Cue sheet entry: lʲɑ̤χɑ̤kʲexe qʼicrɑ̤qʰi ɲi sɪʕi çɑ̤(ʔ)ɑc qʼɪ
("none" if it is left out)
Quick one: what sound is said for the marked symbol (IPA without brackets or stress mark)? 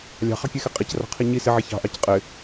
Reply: ʔ